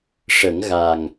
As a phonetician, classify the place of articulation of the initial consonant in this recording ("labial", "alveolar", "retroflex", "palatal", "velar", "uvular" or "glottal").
retroflex